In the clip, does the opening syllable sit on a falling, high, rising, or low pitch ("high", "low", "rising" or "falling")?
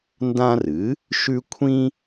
high